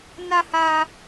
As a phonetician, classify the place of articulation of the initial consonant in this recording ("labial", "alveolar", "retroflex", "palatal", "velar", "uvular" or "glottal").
alveolar